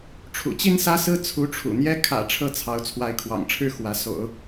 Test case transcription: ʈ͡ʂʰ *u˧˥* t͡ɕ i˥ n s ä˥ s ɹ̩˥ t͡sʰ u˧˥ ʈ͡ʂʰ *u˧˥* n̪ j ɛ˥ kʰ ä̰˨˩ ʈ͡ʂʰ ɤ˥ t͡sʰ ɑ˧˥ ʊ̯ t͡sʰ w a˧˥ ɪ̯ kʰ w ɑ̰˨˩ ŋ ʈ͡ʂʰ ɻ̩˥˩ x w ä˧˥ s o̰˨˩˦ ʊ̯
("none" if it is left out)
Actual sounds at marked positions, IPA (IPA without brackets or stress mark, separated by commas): ṵ˨˩, ṵ˨˩